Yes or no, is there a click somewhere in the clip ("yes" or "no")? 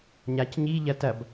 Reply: no